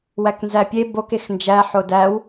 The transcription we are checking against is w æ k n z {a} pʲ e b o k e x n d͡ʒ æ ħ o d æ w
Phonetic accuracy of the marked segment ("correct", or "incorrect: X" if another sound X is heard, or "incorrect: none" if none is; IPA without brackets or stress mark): incorrect: æ